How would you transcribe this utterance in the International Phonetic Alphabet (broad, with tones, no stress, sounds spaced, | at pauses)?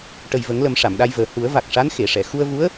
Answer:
ʈ ə˨˩ j v ə˨˩˦ ŋ l ə˨˩˦ m ʂ a˨˩˨ m ɗ a˧ j v əː˨˩ h u˨˩˦ ə̯ v a˨˩ k̚ ʂ a˧˥ n x e˨˩˨ ʂ ɛ˨˩˨ x u˧ ə̯ v u˧˥ ə̯